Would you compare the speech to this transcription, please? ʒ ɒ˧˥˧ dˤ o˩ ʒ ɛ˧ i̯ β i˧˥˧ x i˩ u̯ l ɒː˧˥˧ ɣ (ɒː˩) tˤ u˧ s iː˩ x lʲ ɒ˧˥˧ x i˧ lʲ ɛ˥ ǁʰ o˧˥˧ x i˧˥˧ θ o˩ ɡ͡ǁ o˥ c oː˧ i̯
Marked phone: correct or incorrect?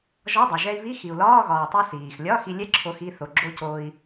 correct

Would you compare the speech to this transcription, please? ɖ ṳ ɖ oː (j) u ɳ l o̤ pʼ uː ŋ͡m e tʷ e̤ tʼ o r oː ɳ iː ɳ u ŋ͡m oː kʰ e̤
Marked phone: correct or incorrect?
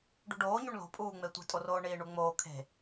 incorrect: ɲ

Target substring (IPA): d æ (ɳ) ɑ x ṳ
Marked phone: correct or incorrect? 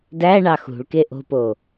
correct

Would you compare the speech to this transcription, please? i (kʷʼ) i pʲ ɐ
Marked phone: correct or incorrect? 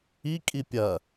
incorrect: kʼ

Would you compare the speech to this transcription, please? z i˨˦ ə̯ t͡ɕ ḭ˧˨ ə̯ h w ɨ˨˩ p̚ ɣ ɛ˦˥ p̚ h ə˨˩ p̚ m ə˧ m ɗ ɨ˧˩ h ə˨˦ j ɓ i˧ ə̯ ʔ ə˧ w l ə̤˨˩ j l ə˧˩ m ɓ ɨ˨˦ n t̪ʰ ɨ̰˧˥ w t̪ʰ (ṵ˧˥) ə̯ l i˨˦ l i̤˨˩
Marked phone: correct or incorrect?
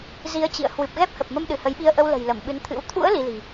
correct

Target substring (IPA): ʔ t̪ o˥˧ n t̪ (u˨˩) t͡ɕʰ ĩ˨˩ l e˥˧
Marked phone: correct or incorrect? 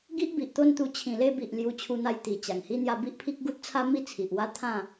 incorrect: u˧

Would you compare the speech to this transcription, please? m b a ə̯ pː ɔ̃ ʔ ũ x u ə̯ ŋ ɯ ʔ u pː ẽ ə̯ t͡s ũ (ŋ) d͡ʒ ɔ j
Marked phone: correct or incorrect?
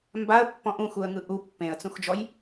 incorrect: x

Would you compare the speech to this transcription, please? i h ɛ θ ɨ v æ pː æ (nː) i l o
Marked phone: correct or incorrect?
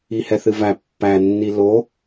correct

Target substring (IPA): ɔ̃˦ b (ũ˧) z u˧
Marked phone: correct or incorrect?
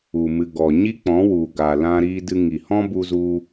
incorrect: u˧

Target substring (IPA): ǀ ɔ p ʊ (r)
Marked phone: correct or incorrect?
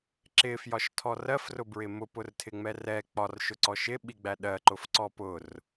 correct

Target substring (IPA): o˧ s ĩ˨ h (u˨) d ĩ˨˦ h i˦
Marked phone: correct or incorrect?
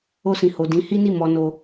incorrect: o˨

